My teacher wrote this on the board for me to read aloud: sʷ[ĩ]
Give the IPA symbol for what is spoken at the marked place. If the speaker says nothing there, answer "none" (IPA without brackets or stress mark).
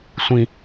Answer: ĩ